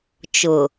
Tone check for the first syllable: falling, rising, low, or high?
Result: low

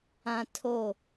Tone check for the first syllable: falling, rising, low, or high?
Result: high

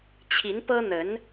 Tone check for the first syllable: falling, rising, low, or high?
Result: rising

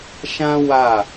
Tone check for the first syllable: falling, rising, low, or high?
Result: high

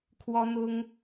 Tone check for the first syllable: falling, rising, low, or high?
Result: high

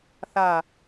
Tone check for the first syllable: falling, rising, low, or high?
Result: low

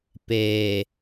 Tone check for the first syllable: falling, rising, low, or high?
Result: low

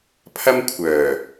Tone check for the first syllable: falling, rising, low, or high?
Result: high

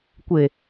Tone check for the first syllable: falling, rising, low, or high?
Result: low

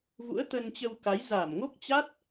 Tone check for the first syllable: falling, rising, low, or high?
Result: rising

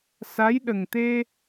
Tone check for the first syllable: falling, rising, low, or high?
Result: rising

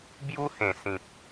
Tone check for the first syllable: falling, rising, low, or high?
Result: high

